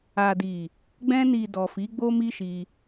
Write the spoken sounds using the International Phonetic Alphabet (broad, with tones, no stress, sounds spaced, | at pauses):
a˨ d i˨ | ɡ͡b ɛ̃˧ n i˨ d ɔ˨ f i˨˦ ɡ͡b o˦ m i˦ ʃ i˧